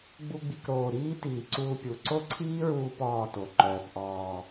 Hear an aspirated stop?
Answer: yes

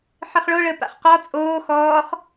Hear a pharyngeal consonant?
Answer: yes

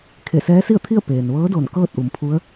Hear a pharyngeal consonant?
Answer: no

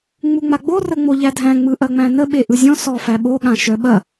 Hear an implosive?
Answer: yes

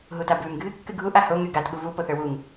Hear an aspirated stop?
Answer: no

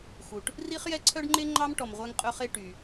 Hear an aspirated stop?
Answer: yes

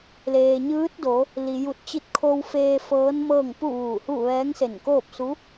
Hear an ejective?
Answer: no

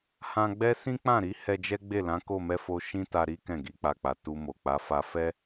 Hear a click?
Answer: no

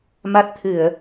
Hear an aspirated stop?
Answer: yes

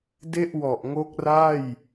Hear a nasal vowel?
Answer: no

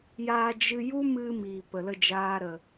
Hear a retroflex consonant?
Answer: no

